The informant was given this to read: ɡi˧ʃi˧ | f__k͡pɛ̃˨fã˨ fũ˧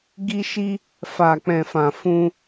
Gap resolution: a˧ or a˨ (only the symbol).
a˨